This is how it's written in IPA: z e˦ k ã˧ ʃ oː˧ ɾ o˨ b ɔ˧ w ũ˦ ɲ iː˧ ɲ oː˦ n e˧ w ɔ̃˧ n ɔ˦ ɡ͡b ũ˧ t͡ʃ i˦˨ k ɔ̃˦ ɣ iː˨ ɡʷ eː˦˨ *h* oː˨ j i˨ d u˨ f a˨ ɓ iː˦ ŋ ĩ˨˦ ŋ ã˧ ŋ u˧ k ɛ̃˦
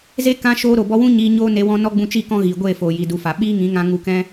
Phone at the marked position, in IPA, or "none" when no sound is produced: f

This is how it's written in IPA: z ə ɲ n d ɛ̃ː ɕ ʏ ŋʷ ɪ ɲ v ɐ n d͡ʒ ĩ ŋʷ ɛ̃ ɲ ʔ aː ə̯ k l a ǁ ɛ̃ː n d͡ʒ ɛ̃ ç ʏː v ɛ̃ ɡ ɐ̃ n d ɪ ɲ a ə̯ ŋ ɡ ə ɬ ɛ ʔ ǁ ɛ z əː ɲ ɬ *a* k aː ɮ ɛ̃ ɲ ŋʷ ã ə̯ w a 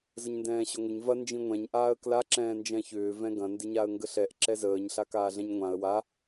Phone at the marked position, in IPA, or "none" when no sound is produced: a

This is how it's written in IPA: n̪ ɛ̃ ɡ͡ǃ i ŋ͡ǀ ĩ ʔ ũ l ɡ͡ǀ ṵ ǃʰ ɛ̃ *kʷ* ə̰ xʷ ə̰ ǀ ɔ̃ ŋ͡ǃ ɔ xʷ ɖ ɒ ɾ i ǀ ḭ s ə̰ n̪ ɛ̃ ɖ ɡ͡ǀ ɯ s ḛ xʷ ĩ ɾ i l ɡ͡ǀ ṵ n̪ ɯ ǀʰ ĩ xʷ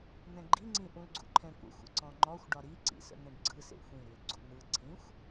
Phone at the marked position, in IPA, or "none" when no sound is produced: kʷ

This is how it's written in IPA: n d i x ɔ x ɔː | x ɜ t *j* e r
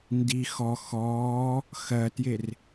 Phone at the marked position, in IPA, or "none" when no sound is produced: j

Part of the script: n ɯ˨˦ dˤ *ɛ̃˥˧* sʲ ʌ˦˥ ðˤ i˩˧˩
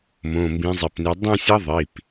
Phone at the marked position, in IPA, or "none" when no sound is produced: ɛ̃˥˧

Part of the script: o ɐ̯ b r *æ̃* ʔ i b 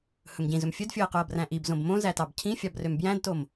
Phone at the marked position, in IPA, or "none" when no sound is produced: æ̃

